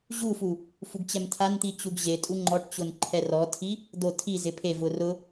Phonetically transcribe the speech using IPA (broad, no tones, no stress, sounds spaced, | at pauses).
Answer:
ʑ u f u | f u ɡ t͡ɕ ɛ m tʰ a n t̪ i t͡ɕ u ɡ ʑ e tʼ u ŋ͡ǃ ɔ ʈ t͡ɕ ʊ n ǃʰ ɛ r ɔ tʰ i | d̪ o tʰ i z ɪ pʰ e v ʊ r ʊ